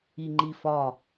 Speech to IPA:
i ŋ͡ǃ i f ɒ

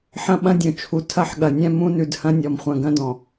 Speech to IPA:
ħ ɐ̃˦ ɓ ɐ̃˦ dʲ ũ˨ t͡ʃʰ u˨ tʰ ɐ˦˨ ħ ɠ ɐ˨ nʲ ɛ̃˦ m ũ˦ n ʉ˨ d h ɐ̃˦ nʲ ɔ˨ m χʷ ɐ̃˨ ɡ ɐ̃˦ d ɔ̃˨

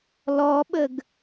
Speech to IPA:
l ɔ ɓ ə ɡ

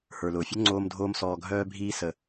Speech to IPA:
h ə˞˨ l ʊː˨ fʲ ʊ˦ ŋ͡ǀ oː˧ m dʱ oː˧ m s ɔː˨ ɡʱ œː˧ bʱ iː˧ s ə˨

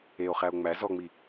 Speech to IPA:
e o̯ χ æ o̯ ŋ͡m æ z ɔ ŋ͡m i

